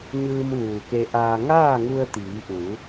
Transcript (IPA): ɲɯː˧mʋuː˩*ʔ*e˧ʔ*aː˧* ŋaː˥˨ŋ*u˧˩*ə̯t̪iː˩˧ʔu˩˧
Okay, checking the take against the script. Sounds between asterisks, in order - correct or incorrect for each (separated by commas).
incorrect, correct, incorrect